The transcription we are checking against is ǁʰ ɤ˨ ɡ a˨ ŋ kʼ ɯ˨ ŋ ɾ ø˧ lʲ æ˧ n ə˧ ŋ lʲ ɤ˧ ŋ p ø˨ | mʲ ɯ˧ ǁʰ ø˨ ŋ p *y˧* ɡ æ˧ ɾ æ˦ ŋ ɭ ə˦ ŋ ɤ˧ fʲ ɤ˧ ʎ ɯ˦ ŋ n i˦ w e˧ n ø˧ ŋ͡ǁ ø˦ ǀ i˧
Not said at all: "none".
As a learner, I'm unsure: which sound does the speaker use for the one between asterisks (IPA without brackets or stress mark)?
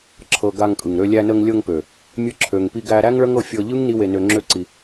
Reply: i˧